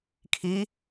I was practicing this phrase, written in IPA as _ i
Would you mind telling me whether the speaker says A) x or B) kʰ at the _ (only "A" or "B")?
B